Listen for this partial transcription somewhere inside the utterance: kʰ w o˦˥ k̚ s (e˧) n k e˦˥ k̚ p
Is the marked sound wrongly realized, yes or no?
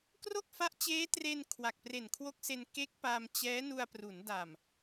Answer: no